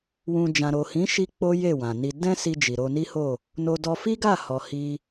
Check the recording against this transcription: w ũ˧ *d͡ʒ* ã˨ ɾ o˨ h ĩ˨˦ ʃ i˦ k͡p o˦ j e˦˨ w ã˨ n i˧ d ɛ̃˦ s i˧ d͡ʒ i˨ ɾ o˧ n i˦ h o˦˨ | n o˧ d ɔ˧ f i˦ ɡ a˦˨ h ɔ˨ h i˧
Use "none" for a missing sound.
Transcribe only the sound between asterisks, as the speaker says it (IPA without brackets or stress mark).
d͡ʒ